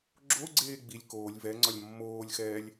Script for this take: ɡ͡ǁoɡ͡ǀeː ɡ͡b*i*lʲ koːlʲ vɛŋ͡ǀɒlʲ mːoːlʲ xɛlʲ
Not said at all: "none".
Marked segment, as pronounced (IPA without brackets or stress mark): i